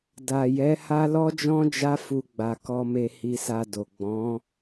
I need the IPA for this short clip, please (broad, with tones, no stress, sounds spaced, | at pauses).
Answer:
d a˨ j ɛ˨˦ h a˦ l ɔ˦ d͡ʒ ɔ̃˦ d͡ʒ a˦ f u˧ ɡ͡b a˨ k ɔ˧ m e˧ h i˧ s a˧ d o˨ ɡ͡b ɔ̃˨˦